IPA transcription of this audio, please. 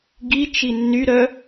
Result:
ɡ i t͡ʃ i nː y ɾ œ

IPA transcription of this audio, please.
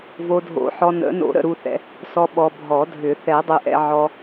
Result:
v o˨ dʱ o̰˨˩˦ ħ ɔ˨ n ə̰˨˩˦ n o̰˨˩˦ ɾ ə̰˨ ɾ u˨ θ ɛ̰˨ | s ɔ˨ ɓ ɔ˨ bʱ ɔ˨˩˦ dʱ ʏ˨˩˦ θ ɛ˨˩˦ dˤ ʏ˨ ʔ ɛ̰˨ ʕ ɔ˨

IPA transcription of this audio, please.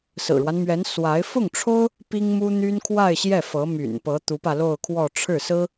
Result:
s ɹ̩˨˩ ɻ w a˦ n m ɥ ɛ˧˥ n s w a˧˥ ɪ̯ f ʊ˥˩ ŋ ʈ͡ʂʰ o˥ ʊ̯ | p i˥ ŋ m u˥ n̪ y˥ n kʰ w a˥˧ ɪ̯ ɕ j ɛ˥˩ f ɤ˧˥ m y̰˨˩ n p ɤ˧˥ t̪ u˧˥ p ä˧ l o˥˧ ʊ̯ kʰ w ɔ˥˧ ʈ͡ʂʰ ɻ̩˥˩ s ɹ̩˥

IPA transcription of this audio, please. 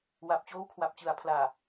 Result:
w a˨˩ p̚ t͡ɕ oː˦˥ w kʰ w a˨˩ p̚ t͡ɕ ɯ˨˩ a̯ pʰ l aː˨˩

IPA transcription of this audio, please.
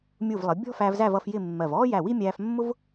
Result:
mʲ u˧˩ v lˠ ə˩˧ bʲ ɔ̤˥ f æ˧ v z æ˥˧ v ʌ˥˧ f j ɪ˥˧ mː ɜ˧˩ v ɔː˥ j æ˧˩ w i˥ mʲ æː˧ f mː ʊ˥ v

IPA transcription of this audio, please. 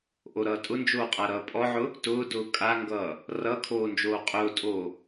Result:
ʔ o ɾ ʌː tʼ ʊ n d͡ʒ oː qʼ a ɾ ʌː pʼ ɔ ʕ ʊ | t ʊː d ʊː kʼ a ŋ ɡ ʌː | r ʌ kʰ oː n d͡ʒ oː qʼ ʊː tʼ oː

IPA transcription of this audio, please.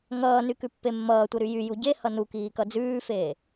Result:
ŋ ʌː n y k ʉ pː e mː ʌː tʷ ʌ ɾ y j y j u ɟ e h ʌ n u k iː k ʌ d͡z ʉː f eː

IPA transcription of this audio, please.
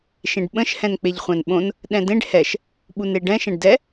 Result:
ʃ ẽ ɖ ɓ ə̃ ʃ h ɛ̃ n k͡p e ʎ χʷ æ̃ n ɓ õ n | ɗ ɛ̃ d ẽ ɖ h ɛ ʃ | ɓ u n e ɖ ɛ̃ ʃ ɛ̃ ɖ d ɛ

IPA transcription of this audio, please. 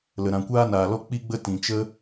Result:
l ə˨ ɾ ã˨ kʷ aː˦ n aː˨ l ɔ˦ k͡p i˦ ɡ͡b ə˦ t ĩ˨ t͡ʃ ə˦

